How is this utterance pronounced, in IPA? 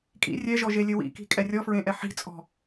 kʼḭ rʲɛʒɔʒelʲɘ wḭki̤kʼɛ rʲɔfɹẽʔɛ ħi̤t͡sʼɔ̤

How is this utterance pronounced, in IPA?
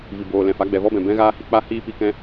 vi˨boː˨lɛ̃˨fa˨˦ ɡ͡bɛ˨vɔ˦bɛ̃˨ bɛ̃˦ɣaː˦hi˦ k͡pa˦hiː˦ pi˧kɛ̃˦

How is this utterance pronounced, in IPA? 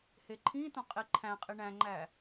heǃʰĩtõ qʼiǃʰæ̃qʼi ɳæ̃ŋ͡ǃæ

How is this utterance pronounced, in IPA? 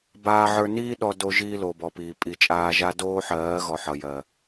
baː˧ʕə˞˧ niː˦ ɗɔ˧do˧ ʒiː˦lo˨bɔ˨piː˨ pʼi˨t͡ʃʼaː˧ʒa˦ doː˦ħɜː˨˦ɣɔ˨ ħʌ˨jɜ˨

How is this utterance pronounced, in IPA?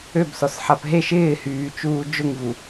øbsɔsħap ɦeʃ ɪːhyːt͡ʃuː d͡ʒʊŋvu

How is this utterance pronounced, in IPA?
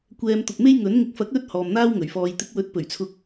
kʷɛː˧m t̪ʊ˨k̚me˥j ŋɵ˨˥n ŋɪ˨k̚fɐ˨˥k̚lɵ˧t̚ hɔː˨mn̪aː˥wŋɵ˨˩ɥ fɔː˨j t̪ɪ˨˥k̚wɵ˨˥t̚ pɵ˨˩ɥt͡sʰʊ˧k̚

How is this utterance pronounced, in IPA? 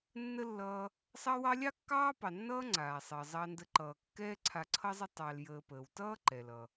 nːə˥lːʌː˦ | sˤɑ˦wɑ˦lʲɑ˥ kːɑː˥pɑ˨ nːʌː˥ŋ͡ǀaː˩sˤəː˩ zˤɑ˦ndə˦ǃʌː˨ kːɛː˦ǀʰa˨ǀʰʌ˦zˤə˦ tˤɑ˨l jəː˨pəː˩wtʌː˥ ǃɛ˩lʌ˩

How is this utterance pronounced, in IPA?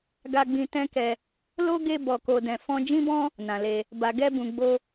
ɡa˧ɡ͡bĩ˧ tɛ̃˦kɛ˧ | lo˦ ɡe˧ bɔ˨ko˨dɛ̃˨ fɔ̃˧ d͡ʒĩ˦bɔ̃˦ | nã˨le˧ | ba˨ɡɛ˧bũ˨ɡ͡bo˧

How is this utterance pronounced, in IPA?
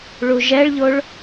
ɭuʒɛɭʎoɭ

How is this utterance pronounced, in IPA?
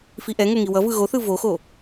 fiʔɛŋo ŋiwʌvɯ ɣoθɯ voxo

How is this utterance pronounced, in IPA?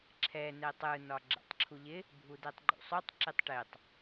ǁʰɛ nɛtˤɯ nɒɡ͡ǁɛ̰tˤǁʰuʎɪ | bʱudɛtˤɡ͡ǃṵsˤotˤ ǁɪtˤʈetˤ

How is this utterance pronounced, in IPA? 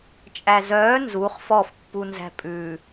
t͡ʃʼæzœː nzuχ fɔf pːunzæ̤pʼʉ

